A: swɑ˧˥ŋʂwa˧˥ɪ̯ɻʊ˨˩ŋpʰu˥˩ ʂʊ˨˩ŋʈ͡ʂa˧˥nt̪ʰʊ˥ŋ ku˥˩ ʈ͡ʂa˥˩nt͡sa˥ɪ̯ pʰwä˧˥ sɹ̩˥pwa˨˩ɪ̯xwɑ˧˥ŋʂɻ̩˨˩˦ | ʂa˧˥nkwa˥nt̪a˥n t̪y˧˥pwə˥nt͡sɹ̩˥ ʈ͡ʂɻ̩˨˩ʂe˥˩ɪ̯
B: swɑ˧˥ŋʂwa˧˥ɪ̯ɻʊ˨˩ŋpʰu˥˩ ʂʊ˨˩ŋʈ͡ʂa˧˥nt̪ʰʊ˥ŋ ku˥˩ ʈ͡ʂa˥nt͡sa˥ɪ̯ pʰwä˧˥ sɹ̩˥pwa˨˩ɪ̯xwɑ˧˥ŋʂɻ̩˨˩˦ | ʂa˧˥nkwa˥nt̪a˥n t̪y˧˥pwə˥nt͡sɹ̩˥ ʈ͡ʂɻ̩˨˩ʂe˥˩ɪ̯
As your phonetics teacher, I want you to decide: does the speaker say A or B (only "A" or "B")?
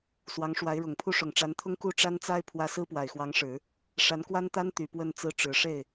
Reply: B